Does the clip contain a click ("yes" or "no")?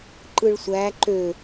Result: yes